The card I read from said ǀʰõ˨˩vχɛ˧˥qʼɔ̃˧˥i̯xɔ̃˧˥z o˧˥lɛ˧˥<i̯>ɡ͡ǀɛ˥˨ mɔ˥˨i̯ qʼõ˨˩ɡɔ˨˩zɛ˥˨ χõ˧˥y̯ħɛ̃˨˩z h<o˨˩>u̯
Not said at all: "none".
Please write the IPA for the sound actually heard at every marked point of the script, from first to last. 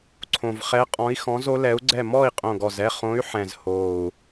u̯, o˨˩

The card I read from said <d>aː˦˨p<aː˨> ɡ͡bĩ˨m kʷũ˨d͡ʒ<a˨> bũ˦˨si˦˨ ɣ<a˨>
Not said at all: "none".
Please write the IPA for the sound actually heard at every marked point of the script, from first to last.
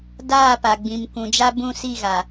d, a˨, a˦, a˨

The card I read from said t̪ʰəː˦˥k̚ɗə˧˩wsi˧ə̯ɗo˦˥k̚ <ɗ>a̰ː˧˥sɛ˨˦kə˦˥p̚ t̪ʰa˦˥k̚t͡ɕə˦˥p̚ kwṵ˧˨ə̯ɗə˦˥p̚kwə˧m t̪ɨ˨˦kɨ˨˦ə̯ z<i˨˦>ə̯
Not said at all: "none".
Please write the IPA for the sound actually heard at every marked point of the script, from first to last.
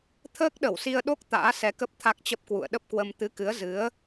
t̪, ɨ˨˦

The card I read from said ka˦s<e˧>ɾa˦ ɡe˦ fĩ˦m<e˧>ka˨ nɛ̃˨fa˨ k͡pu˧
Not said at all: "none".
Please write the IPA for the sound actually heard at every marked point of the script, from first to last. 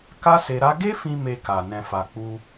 e˧, e˧

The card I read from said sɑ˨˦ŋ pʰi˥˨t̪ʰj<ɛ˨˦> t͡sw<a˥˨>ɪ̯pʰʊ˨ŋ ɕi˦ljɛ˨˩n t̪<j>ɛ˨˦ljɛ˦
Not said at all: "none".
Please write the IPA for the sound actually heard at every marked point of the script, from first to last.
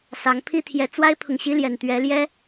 ɛ˨˦, a˦, ɥ

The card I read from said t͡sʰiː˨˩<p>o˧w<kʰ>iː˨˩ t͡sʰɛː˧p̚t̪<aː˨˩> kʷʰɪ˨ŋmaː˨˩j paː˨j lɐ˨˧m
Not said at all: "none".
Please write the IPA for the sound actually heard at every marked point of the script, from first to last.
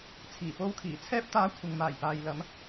p, kʰ, aː˨˧

